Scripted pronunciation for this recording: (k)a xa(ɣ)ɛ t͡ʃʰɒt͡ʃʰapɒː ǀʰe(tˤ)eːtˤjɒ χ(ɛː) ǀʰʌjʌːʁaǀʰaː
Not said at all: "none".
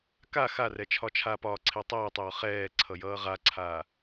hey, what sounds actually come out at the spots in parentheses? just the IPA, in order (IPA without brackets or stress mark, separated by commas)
k, r, tˤ, ɛː